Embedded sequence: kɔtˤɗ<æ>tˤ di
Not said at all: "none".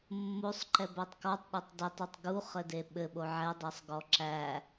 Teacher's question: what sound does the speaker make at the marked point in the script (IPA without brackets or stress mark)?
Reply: ɛ